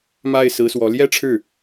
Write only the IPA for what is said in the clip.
ma˥˩ɪ̯sɹ̩˧˥swɔ˧˥ ljɛ˥ʈ͡ʂʰɻ̩˥˩

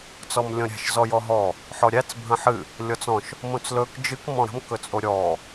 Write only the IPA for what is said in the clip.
t͡sɔmlʲɔ̃ɾʲæ̤ʃ zɔjɔɦɔ | ħɔɾʲæt͡s bʱə̃ħɨ | lʲɔt͡sɔ̃ʃ | mõt͡slɵk d͡ʒɨk mɔ̃ɾə̤m kɵt͡sʼoɾʲɔ

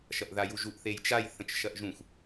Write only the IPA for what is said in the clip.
ʃɐʔðajuʒuʔ θejt͡ʃaj θə̃t͡ʃʃɐʔʒũxʷ

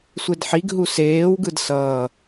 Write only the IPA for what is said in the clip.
sʷedħiɡ ɦuseːwɡɯd sʌː

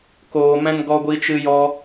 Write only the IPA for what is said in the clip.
koː˧mɛ̃˦n ɡɔ˧ɡʷi˧t͡ʃɨ˧jɔ˧

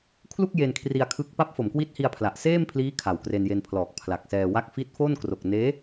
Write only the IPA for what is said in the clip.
kʰlu˥˩k̚ je˧nkʰri˧a̯kʰɯ˦˥k̚ pa˦˥p̚fo˩˦mkwi˦˥t̚hi˧a̯ pʰla˨˩ʔseː˥˩mpʰliː˦˥ kʰa˨˩wkre˧nje˧n pʰlɔː˨˩k̚pʰla˨˩k̚sɛː˧wa˥˩k̚ fi˦˥t̚fo˥˩nkro˨˩k̚ neː˦˥

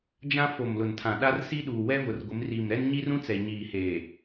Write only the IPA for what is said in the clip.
d͡ʒã˦ fo˨mlʊ˨ntʰã˨ ɗa˦rsi˦ɗuː˨ wɛ˦vʊ˨r ɡʷɪ˨˦m ri˨m ɾɛ˦nɲi˦rũ˦t͡sɛ˨ ɲiː˨heː˨

